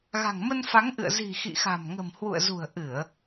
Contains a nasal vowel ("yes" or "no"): no